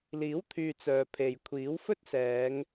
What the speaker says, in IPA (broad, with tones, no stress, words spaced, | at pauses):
liː˨˥wt̪ʰyː˨ t͡sœː˨pʰe˨j kʷʰiː˨˥w fɵ˥t̚sɛː˨˧ŋ